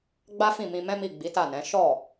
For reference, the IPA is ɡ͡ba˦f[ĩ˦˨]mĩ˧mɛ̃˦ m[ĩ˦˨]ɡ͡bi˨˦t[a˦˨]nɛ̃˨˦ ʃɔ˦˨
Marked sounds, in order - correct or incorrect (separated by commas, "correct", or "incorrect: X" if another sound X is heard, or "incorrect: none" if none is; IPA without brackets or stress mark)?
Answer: correct, incorrect: i˦˨, correct